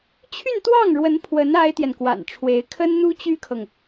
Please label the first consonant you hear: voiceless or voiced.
voiceless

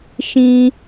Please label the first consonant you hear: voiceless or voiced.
voiceless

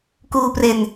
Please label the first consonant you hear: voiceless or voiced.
voiceless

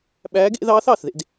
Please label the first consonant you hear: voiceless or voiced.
voiced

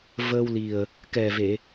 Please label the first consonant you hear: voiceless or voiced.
voiced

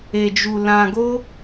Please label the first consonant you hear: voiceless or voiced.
voiced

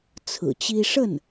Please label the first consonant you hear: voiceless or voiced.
voiceless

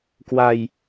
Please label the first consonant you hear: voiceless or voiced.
voiceless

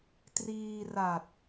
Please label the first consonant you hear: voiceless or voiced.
voiceless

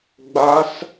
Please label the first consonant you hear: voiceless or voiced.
voiced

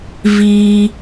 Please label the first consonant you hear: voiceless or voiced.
voiced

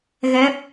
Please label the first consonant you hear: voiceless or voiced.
voiced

